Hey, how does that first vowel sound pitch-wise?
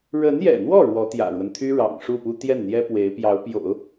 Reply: rising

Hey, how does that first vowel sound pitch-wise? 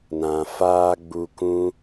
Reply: low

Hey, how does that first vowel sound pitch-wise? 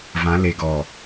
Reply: rising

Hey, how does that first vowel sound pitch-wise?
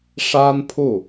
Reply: high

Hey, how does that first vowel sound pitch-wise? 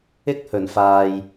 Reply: high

